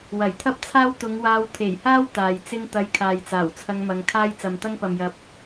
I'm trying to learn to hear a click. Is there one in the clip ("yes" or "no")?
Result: no